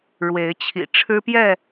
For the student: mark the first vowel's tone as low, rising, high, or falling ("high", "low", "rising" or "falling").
rising